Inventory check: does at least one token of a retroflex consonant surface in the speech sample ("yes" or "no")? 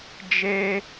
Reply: no